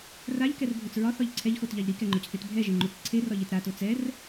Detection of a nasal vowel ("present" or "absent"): absent